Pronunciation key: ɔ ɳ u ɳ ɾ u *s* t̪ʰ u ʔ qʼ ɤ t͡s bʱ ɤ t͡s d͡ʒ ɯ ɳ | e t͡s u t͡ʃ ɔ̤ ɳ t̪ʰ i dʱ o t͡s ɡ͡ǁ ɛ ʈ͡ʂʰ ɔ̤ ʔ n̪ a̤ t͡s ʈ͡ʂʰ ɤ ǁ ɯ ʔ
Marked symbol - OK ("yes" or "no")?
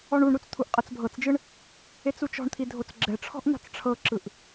no